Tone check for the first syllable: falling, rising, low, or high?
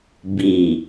low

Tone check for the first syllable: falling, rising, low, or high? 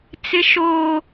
high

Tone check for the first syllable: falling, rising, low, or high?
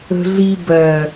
low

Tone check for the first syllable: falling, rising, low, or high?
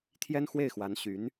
high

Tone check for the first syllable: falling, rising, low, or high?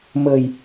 low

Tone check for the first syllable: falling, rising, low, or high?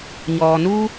low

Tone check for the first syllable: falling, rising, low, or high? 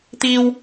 low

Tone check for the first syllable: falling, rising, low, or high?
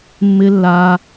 high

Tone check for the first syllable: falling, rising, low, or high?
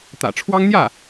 low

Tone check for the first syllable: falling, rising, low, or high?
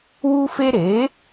high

